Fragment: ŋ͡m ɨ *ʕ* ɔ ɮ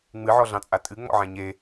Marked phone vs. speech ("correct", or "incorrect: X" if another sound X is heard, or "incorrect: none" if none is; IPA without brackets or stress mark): correct